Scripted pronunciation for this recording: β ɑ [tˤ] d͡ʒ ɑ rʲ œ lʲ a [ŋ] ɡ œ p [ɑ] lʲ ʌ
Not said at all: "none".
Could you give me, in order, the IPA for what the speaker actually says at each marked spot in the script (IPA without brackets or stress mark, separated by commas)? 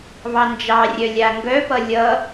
n, ŋ, ʌ